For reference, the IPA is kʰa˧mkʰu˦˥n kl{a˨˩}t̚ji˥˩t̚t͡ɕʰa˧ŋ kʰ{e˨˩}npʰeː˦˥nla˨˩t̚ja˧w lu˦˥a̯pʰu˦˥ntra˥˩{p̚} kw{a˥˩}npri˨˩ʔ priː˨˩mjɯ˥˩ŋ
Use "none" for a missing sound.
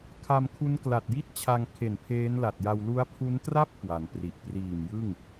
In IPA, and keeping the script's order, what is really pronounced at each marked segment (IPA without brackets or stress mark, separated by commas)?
a˨˩, e˨˩, p̚, a˩˦